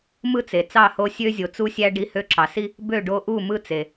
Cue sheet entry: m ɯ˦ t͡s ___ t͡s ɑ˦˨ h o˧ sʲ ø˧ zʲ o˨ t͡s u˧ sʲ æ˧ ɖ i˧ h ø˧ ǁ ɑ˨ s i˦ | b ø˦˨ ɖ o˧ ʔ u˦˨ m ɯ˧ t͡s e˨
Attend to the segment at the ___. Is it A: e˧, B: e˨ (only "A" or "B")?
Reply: B